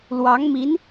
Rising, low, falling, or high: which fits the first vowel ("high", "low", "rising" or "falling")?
rising